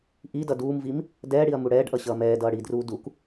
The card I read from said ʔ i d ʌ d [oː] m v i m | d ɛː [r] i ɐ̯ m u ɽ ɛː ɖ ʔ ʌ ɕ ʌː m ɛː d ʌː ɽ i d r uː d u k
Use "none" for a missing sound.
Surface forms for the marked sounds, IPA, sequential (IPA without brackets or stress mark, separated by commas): uː, ɽ